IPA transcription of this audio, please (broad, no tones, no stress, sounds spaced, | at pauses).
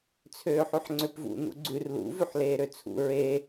t͡sʰ øː ħ ʉ ħ ŋ͡ǀ ø p v ṵ n ṵ ɡ͡ǀ ʉ r l ṵ v ʉ ħ l eː ɾ ø t͡sʰ ṵ ɹ e